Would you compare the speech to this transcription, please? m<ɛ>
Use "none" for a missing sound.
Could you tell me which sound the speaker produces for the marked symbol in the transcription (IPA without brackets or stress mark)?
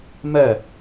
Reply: ɜ